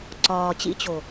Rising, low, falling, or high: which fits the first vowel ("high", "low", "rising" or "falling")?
low